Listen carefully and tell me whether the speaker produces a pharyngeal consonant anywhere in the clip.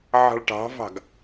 yes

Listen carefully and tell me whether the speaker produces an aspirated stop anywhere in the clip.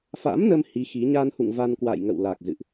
no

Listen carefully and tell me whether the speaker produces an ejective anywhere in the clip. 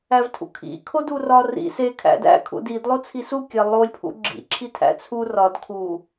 no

